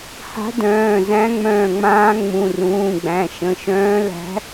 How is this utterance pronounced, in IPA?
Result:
ha̤˧˥dœ̃ː˩˧˩ zæ̃˧˥ŋ͡mœ̃ː˧˩ŋ͡mãː˧˥ ŋ͡mũ˩˧˩rũː˩˧˩ɡ͡bæ̃˩˧˩ ʃə̃˩˧˩ʃœ̃ː˧˥ læ̤˧˥

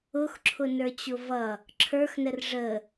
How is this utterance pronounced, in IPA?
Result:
ʊxǁʰʊnə˞t͡ɕʊ vʌ | ǁʰə˞xnər ʐə

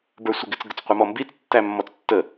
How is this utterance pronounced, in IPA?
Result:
bə˞sʷɛɡɪt͡s ɡʊt͡sqʷɑmɔmbit͡s tːæmːɔt͡stːə

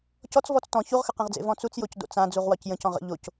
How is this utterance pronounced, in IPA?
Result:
cɔt͡s vɔt͡stɔ̃ çuʁxəqẽʁd͡zḛ vɔ̃t͡sut͡sjoc do̰t͡sã d͡zuʁwɒcjə̃c ɔ̃ʁə̰ ʎoc

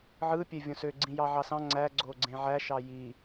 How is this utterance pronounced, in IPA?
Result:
ʕɯ pʲevʲõsø ɡ͡ǀĩjɑʕɑsɑ̃ ŋ͡ǀæ ɡ͡ǀoɡ͡ǀẽʕæ ʃɑji

